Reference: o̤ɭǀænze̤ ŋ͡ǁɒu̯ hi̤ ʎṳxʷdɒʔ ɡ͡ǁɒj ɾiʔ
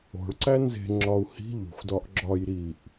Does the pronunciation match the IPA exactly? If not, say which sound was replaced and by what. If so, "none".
none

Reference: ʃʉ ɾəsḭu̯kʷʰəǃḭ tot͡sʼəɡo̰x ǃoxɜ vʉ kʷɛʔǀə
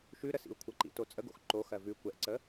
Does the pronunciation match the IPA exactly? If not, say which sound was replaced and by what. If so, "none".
none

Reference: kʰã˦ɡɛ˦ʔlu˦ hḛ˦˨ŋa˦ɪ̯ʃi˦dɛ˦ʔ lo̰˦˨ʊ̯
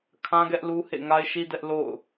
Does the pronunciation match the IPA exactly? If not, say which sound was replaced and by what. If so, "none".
none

